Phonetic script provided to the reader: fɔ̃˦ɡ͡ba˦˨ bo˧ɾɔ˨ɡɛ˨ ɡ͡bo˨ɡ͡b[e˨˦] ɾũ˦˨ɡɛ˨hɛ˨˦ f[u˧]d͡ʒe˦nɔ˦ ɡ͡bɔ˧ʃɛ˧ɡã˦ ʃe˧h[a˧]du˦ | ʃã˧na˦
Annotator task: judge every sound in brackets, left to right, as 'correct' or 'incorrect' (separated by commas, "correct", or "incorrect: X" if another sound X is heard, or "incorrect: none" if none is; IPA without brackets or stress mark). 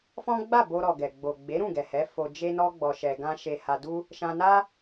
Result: correct, incorrect: o˧, correct